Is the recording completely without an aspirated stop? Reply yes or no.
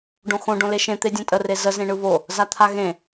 no